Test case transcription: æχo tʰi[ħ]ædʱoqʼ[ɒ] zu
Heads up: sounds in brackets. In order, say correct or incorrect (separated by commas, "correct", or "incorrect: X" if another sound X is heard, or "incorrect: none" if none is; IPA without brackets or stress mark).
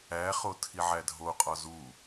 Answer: incorrect: ʕ, correct